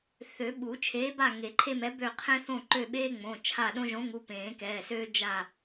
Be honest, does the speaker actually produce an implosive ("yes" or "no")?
yes